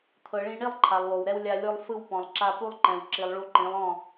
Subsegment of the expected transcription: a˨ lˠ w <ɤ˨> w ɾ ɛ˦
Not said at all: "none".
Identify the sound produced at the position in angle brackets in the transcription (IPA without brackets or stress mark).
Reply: o˨